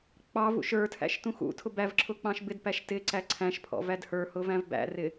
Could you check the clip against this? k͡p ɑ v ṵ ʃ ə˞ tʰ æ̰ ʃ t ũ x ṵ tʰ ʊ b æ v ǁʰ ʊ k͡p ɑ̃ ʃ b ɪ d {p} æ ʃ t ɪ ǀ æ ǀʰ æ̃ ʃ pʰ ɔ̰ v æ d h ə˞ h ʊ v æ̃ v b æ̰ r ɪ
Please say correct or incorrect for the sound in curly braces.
correct